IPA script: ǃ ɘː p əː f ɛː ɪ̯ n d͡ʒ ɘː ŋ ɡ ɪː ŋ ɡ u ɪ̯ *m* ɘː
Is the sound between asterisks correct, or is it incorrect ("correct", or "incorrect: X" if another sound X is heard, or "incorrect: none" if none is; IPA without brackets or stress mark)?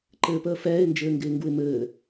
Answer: correct